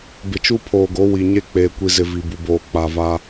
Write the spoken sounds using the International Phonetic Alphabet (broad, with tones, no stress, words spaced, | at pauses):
bɪ˨t͡ʃu˦pʰoː˨ɡo˨˦ wi˨ɲe˦ k͡peː˨kʷi˨zɪ˨ vi˨bu˨boː˨ k͡pa˨va˦